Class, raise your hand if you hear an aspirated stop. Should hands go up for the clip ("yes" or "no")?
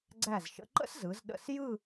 no